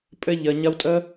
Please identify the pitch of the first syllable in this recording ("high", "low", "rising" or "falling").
high